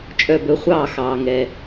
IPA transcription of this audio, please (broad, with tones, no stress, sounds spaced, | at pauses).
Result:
t͡ʃʼ œ˧˩ b ɵ˨˥ χʷ ɑː˥˨ x ɑː˩ ŋ ɛ˩